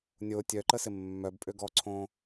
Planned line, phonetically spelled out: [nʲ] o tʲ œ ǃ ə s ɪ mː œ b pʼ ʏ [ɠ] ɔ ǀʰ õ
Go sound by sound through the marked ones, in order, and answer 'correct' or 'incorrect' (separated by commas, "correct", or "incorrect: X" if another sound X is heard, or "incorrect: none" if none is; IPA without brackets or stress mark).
correct, incorrect: ɡ